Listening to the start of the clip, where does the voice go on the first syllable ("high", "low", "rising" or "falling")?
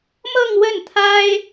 falling